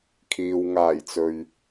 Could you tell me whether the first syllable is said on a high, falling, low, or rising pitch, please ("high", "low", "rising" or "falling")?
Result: low